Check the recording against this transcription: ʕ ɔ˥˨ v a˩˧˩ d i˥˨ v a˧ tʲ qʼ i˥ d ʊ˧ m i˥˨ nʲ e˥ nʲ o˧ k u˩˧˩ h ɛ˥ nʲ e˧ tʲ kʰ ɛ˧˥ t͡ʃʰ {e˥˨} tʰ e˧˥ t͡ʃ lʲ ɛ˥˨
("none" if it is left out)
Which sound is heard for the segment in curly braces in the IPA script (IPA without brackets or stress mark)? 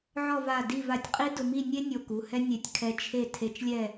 e˥˨